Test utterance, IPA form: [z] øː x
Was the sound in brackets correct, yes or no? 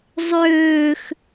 no